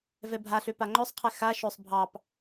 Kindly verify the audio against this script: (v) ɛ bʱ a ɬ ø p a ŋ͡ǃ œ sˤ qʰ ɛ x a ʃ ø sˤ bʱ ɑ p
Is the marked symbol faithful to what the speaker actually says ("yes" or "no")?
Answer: yes